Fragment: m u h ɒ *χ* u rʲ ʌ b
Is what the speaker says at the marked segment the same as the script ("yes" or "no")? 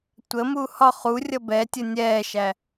yes